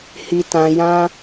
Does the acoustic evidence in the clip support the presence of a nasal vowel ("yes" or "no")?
yes